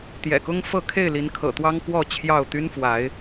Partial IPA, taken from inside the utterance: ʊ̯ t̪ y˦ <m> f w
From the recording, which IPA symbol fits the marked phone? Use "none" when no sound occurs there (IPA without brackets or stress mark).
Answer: n